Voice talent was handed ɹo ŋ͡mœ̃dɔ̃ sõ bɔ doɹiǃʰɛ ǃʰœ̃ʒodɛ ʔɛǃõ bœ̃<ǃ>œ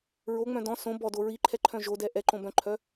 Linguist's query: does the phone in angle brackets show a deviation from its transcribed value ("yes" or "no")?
yes